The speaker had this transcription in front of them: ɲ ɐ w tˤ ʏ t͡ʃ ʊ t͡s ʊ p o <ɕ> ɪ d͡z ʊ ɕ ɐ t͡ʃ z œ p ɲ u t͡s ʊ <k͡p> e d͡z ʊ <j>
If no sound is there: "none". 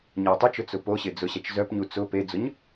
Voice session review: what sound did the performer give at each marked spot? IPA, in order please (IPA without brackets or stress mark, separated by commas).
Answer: ɕ, p, ɲ